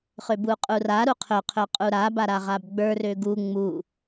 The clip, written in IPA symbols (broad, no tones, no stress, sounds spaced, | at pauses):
χ ø b u qʼ u r a ɾ u qʰ ɵ qʰ ɵ qʼ u ɾ a b a ɾ a ʁ a b ɡ͡b ə˞ r ø ɡ u ŋ͡m u